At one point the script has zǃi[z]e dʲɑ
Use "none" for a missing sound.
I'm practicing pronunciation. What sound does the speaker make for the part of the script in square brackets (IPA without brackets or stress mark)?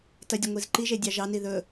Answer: ʒ